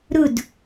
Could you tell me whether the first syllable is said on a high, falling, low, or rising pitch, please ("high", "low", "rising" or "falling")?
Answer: falling